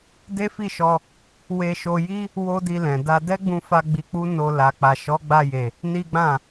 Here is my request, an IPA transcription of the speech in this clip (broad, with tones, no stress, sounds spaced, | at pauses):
d e˦ f i˦˨ ʃ ɔ˧ | w e˧ ʃ o˧ j i˦ | w o˦ d i˧ l ɛ̃˨ d a˧ d ɛ˦ ɡ͡b ũ˧ f a˧ ɡ͡b i˧ k͡p u˦ n o˧ l a˨ k͡p a˨ ʃ ɔ˨˦ ɡ͡b a˧ j e˨ | n i˦ ɡ͡b ã˦˨